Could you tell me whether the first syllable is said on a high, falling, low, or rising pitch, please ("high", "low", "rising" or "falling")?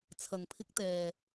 low